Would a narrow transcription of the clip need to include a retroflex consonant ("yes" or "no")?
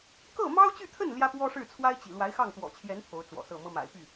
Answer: yes